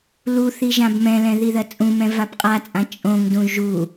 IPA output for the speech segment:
luθi ʒãbmɛ̃lɛ̃ ðiðɜt͡sʼũmɛ̃ vapqʼat͡sʼã t͡ʃʼõŋdũ ʒu

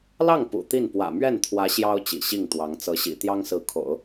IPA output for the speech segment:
lɑ˥˩ŋ pṵ˨˩t̪i˥˩n pwä̰˨˩mɥɛ˥˩nt̪ʰwä˧˥ ɕjɑ˥ʊ̯ t͡ɕḭ˨˩ ɕi˥˩ŋ t̪wɑ˧˥ŋ t͡sɤ˧˥ɕḭ˨˩ t̪jɑ˥ŋsɹ̩˧˥kʰo̰˨˩˦ʊ̯

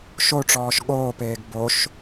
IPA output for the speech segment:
ʃoʈ͡ʂɔːʃ ɠoːpeːɡ boʃ

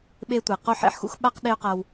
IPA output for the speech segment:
ɓe˦tʷɛ˨ qo˦˨ħḛ˨ħxṵ˦x ɓa˧q ɗe˦ʊ̯qa˧w

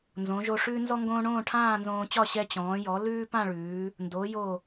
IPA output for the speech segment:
nzõ˩˧ʒo˧ ʂʉː˥nzɔ˥ŋɡõː˥ ɳõː˥˧ʈʰãː˥˧nzõː˧t͡ɕɒ˥˧ ɕɛ˧t͡ɕɔ̃ː˩˧jɔ˩˧ lʉː˥pã˥˧ɭʉː˩˧ | ndo˩˧ jo˧˩

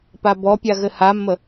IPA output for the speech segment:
pabɔpʲa ɣɘhamːə

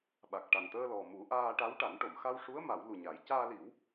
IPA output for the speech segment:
ɓa˨˩k̚ ʈa˨˩nt̪əː˧lɔ˨˩ mu˨˩˦ʔaː˧ʈa˧˥wʈa˨˩˦n ʈo˨˩˨mxa˧wʂu˧˥ə̯ ma˨˩˦wlu˨˩ ɲa˨˩˦j caː˧li˨˩˦w

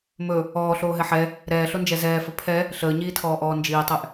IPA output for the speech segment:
mɵ | ɔːɬoːɦɛ ħɛ | ɾɛːɬond͡ʒɛ zɛːfɵ pʰɛ | ɬəːɲiːtʰɔːʔɔː nd͡ʒiːtˤɛʔ

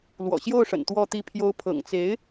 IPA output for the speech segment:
lwɔ̰˨˩ɕjo˥˩ʊ̯ʂə̰˨˩n t̪wɔ˥˧t̪i˥˩pʰjo˥ʊ̯ pʰɤ̰˨˩ŋt͡se˧˥ɪ̯

